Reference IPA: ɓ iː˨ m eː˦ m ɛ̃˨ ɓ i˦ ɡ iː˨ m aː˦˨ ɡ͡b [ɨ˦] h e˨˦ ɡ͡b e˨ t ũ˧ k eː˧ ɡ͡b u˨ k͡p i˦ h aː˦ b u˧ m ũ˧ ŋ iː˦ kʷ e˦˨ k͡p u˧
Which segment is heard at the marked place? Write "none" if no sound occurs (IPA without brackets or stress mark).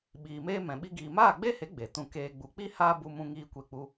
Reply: e˦